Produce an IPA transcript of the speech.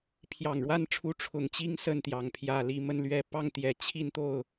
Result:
pʰ j ɑ˨˩ ŋ ɻ w a˥˨ n ʈ͡ʂʰ u˨˦ ʈ͡ʂʰ ʊ˨˩ ŋ t͡ɕ i˥˨ ŋ s ə˥˨ n t̪ j ɑ˩ ŋ pʰ j ä˨˩ l i˥˨ m ə˥˨ n l ɥ ɛ˥˨ p ɑ˥˨ ŋ t̪ j ɛ˨˩ t͡ɕʰ i˥˨ n t̪ o˥˨ ʊ̯

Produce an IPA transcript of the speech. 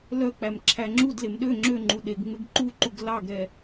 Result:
l œ k͡p æ m ǁʰ æ ŋ͡ǁ u d l e m ɗ ø ŋ͡ǁ ø ŋ͡ǃ u ɗ e ɡ ŋ͡m e ɡ ǃ u ǃ u ɡ l ɑ ɡ ɾ ɛ

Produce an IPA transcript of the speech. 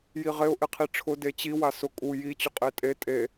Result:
j i ʁ e ʊ̯ ʔ e qʰ i ʈ͡ʂʰ ʊ d e t͡ɕ i w a s ʊ kʼ u j i t͡ɕ ʊ qʼ e tʼ e tʼ e

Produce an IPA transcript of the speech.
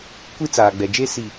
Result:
kʷ i˦ t͡s aː˨ ɡ͡b ɛ˨ d͡ʒ e˦ s i˨

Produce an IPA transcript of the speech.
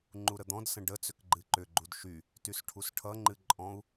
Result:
ŋ͡ǃ u ɾ ə d̪ ɔ̃ d s ə̃ ɖ ə t͡s ʏ k ɡ͡ǃ ɨ ǃ ʏ ɡ͡ǃ u d ʃ y | t y s ʈʰ u s ʈʰ ʌ ŋ͡ǃ ɨ ǃʼ ɔ̃ u̯

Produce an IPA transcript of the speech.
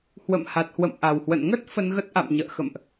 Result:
h w ə̰˧˨ m h a˨˩ t̚ h w ə̰˧˨ m ʔ a˨˩ w h w ə̰˧˨ n ŋ ə˦˥ t̚ f ə˧ n ɣ ə˦˥ t̚ ʔ a̰˧˨ m ɲ ə̰ː˧˨ x ə̰˧˨ m ʔ

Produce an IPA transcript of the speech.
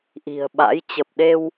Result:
ʔ i̤˨˩ ə̯ ɓ a̰˧˥ j t͡ɕ ə˨˩ p̚ ɗ e˧ w

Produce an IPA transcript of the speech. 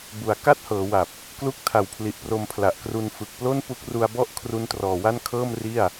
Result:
b u˩˦ a̯ k a˥˩ t̚ h ɤː˩˦ w a˨˩ p̚ | k l u˦˥ k̚ tʰ a˨˩ w pʰ l i˨˩ ʔ p r o˧ m pʰ l a˨˩ ʔ k r u˧ n f ɯ˨˩ k̚ p l o˥˩ n p u˦˥ k̚ r u˧ a̯ b ɔ˥˩ ʔ kʰ r u˦˥ n t r ɔː˨˩ w a˥˩ n kʰ ɤː˥˩ m r i˥˩ a̯

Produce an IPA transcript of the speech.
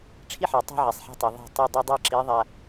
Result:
ʈ͡ʂʰ i˦ ħ ɛ˨ tˤ a̤˦ ʕ ɛ˨ sˤ ħ a̤˦ tˤ ɯ˨ ðˤ e̤˦˨ tˤ i˦˨ dˤ ɯ˦ dˤ a˦ ǁ i˨˦ ðˤ a˨

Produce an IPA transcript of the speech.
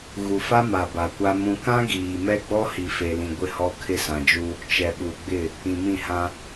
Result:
ɣ u˨ f a˦ m a˨ b a˨ kʷ a˦ m ũ˦ k ã˦ ɡ iː˨ m ɛ˦ ɡ͡b ɔ˦ h i˨ f e˨ l ĩ˨ ɡʷ ɪ˦˨ h ɔ˦ kʰ ɪ˦ s ã˨ d͡ʒ u˦ | t͡ʃ ɛ˨ ɓ u˨ ɡ͡b ɪ˦˨ | ĩ˨ m ĩ˦˨ h ã˦

